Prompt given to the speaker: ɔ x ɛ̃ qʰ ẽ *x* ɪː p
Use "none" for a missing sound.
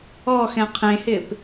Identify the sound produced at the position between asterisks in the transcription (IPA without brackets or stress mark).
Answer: h